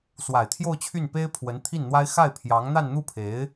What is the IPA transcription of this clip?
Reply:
swa˨˩ɪ̯t̪ʰjo˥˧ʊ̯t͡ɕʰy˥˩npe˥ɪ̯ pʰwə˧˥nt̪ʰi˥˩nn̪wa˥ɪ̯ xa˥˩ɪ̯pʰjɑ˧˥ŋ n̪a˥˧nn̪u˥˩pʰe˧˥ɪ̯

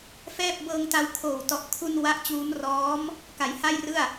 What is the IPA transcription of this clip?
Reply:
fɛː˥˩p̚ bɤː˧ŋta˧wkʰoː˨˩wtɔ˨˩ʔ kʰu˧n wa˦˥ʔt͡ɕuː˦˥m rɔː˦˥m | ka˩˦jha˥˩jrɯ˥˩a̯

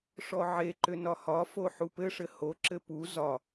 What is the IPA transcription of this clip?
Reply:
ʂɔʕeǃʏ nɒhɒfo ħupɘʂɘ hoǁɘ pu zɒ

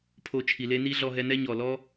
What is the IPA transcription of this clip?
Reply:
pʰo˧t͡ʃʰi˨le˦ ni˦ɮɔ˧ɦɛ˧ nɛ˦ɲɔ˨lɔ˦

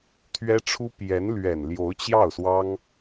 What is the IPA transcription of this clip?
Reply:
t̪ʰɥɛ˥ʈ͡ʂʰu˥ pjɛ˧˥nlɥɛ˨˩nljo˧˥ʊ̯ t͡ɕjɑ˥˩ʊ̯swɑ˥ŋ

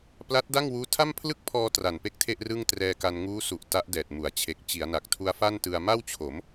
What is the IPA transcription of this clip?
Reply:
pla˦˥t̚da˥˩ŋwuː˦˥ tʰa˥˩mpʰlɯ˥˩k̚pʰɔː˧ tra˨˩npe˥˩k̚tʰe˥˩ʔ rɯ˥˩ŋtrɛː˧ka˧n ŋuː˦˥su˨˩ʔ ta˦˥ʔdɛː˨˩t̚mu˩˦a̯t͡ɕʰe˨˩k̚ t͡ɕi˩˦a̯na˨˩k̚tʰu˧a̯ fa˥˩ntɯ˧a̯ ma˥˩wt͡ɕʰo˩˦m

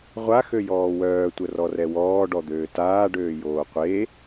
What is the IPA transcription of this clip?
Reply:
ʁʷa xøjɔːwœː tʷərɔrɛwɔː ɖɔd̪øːtaː ɖøːjoːqʷe

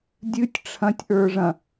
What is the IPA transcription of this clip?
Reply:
dʲɨtʲ ʈ͡ʂʰɐ̃tʲʔə˞ʐɐ̃

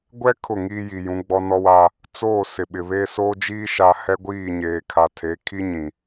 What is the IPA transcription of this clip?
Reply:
ɡʷɛ˦ kʰʊ˦˨ŋiː˦ ji˨jũ˨˦ ɡ͡bɔ˦nɔ˦wa˦ | t͡soː˦˨ sɪ˨ɓɪ˨βeː˦ soː˦d͡ʒiː˦ ʃa˦ hɛ˦ɡʷiː˦˨ɲeː˨ kʰa˨tʰe˨˦kʰi˦ ɲĩ˨

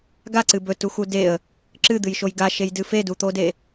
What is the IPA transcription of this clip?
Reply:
ɡaǀɨ bɵtuxu deə̯ | ǁɨd̪ɨjʃoj ɡaʃejdɨ fedut̪ode

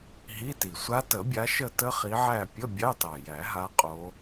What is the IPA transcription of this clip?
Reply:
ɦi˧˥˧ti˨˩sʷa˦˥ tə˨˩˦bʲa˨˦ʃə˦˨ tə˦˥χi˨˦ʕæ˦˨ pʲə˧˥˧ bʲɑ˧˥˧tɑ˨˩jæ˨˩˦ɦa˨˦ qʼo˨˦

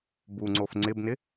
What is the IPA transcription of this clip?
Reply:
buŋ͡ǀof ŋ͡ǀɪbnɪ

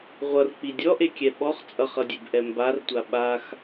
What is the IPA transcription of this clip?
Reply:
ʁʷʌrk͡pi dʲɔʔekʲɛ ɓɔχ t͡sʼʌχʌdʲebʔɛ mbartʷa ɓax

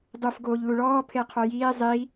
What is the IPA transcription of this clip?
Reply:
dˤuf ɡoːʎluɭɔː pʰeqʰojiː zˤi

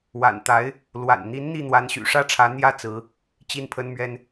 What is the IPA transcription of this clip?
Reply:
wa̰˨˩nt̪a˧˥ɪ̯ | lwa̰˨˩nn̪i˧˥n n̪i˥˩n̪wa˧˥nɕy̰˨˩ ʂä˥˩ʈ͡ʂʰä˧˥n̪jä˥˩ t͡sɹ̩˧˥ | t͡ɕi˥˩npʰə˥n mɥɛ˥n

